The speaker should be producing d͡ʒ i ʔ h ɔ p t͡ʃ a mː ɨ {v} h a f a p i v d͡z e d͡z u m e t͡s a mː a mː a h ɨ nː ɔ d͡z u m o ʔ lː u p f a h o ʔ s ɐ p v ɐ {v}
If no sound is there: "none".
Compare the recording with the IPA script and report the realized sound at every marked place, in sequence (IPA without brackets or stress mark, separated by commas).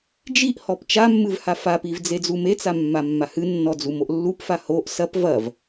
v, v